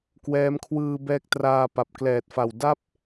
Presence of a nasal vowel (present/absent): absent